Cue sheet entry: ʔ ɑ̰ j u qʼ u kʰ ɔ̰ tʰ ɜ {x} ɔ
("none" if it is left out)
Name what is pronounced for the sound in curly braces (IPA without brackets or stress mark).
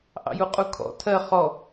χ